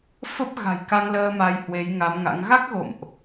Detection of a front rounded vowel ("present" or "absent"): absent